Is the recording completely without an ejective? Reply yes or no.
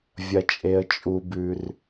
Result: no